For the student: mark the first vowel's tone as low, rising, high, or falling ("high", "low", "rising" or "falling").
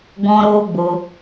high